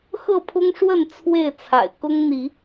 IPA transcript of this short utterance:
x ɤ˥˨ pʰ ʊ˦ ŋ ʂ w ə˥˨ n t͡sʰ w e˥˨ ɪ̯ t͡sʰ a̰˨˩ ɪ̯ k ʊ˦ ŋ n̪ i˨˦

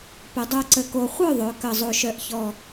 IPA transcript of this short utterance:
p ə˩˧ dˤ o˨˩ ǀ ə˨˩ k o˨˩ χʷ œ˥˩ ðˤ œ˩˧ k ə˨˩ zˤ o˨˩ ʃ œ˨˩ ʔ ç ɔ˨˩

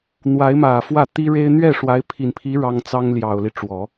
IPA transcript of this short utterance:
n̪ w a˧˥ ɪ̯ m ä˨˩ f w ä˥˩ t̪ i˥ ɻ e˥ ɪ̯ n̪ ɥ ɛ˥˩ ʂ w a˧˥ ɪ̯ pʰ i˨˩ n pʰ i˧˥ ɻ ɑ˥ ŋ t͡s ɑ˥ ŋ l j ɑ˨˩ ʊ̯ l i˦ ʈ͡ʂ w ɔ˨˩˦

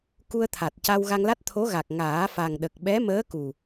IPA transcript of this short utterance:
k u˧ ə̯ t̪ʰ a˨˩ t̚ c a˧ w ɣ a˧ ŋ l a˦˥ t̚ t̪ʰ o˧˥ ɣ a˨˩ k̚ ŋ aː˨˩˦ f a˨˩ ŋ ɗ ə˨˩ k̚ ɓ ɛ˧˥ m əː˧˥ k u˨˩

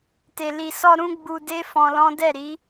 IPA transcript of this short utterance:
t e˨ l i˨ s ɔ˧ ɾ ũ˦ ɡ͡b u˧ d e˦ f ɔ̃˧ l ɔ̃˦ d ɛ˦˨ ɾ i˨˦

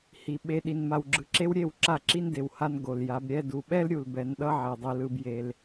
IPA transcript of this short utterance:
h i˨ ɓ e˨ ɗ i˨ n m a˨ w ɡ͡ǁ ɯ˨ ǁ e˦ w ɾʲ e˦˨ w ǁ a˦˨ ǁ i˦ n d e˨ w h a˦ n ɡ o˨ l j a˨˦ b ɾʲ ɛ˦ d u˨ ɓ ɛ˦ l ɾʲ u˨ l b ɛ˨˦ n ɗ ʌ˦ ʕ ɛ˨ dˤ i˨ l ɯ˦ b j e˦ l

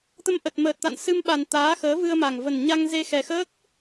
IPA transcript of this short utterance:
t̪ ə˧ m ʔ ə˨˩ t̚ m əː˨˩ t̚ t̪ a̰˧˨ n s ɨ˧ m ɓ a˨˩ n t̪ aː˨˦ x əː˨˦ v ɨ˧ ə̯ m a˨˩ ŋ v ə˨˩ n ɲ a˧ ŋ z e˧ x ɛ˨˩ x əː˦˥ k̚

